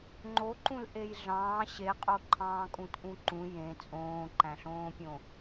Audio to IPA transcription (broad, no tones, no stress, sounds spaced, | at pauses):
ŋ͡ǃ o ǃ ũ l ʔ e j ɮ ɑ̃ː ɕ e qʼ o ǃʰ ɑ̃ː kʼ ũ t ʔ ũ ǃ ũ j ẽ t͡sʼ õː ǃ æ̃ ɬ õː pʲ õ